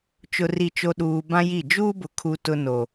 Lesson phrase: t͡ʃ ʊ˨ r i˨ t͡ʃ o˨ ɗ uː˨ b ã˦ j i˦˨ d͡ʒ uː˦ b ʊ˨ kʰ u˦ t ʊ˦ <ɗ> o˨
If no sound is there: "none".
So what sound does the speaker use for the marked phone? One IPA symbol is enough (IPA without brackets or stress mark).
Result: n